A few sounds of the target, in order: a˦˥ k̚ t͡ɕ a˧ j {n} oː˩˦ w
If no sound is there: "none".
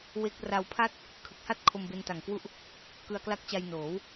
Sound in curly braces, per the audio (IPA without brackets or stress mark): n